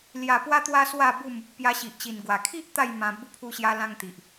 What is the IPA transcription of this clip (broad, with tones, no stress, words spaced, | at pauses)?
lja˨˩pwa˧t̪wa˧ swa˥˧bu˥˧m | pja˧ɕi˨ʔt͡ɕi˨˩nɡwa˨˩ kʰi˦ʔ t̪a˥˧jmã˧ bu˧pʰu˧ɕja˧ lã˧ŋ t̪i˨ʔ